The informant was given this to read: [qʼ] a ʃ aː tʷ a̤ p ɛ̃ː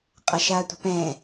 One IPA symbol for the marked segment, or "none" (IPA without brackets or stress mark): qʼ